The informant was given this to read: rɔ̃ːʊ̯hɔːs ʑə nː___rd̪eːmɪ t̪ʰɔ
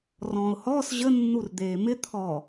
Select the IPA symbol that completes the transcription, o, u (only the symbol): u